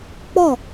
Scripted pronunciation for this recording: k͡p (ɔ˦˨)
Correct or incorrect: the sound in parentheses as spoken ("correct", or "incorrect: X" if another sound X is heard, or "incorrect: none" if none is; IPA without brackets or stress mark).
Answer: correct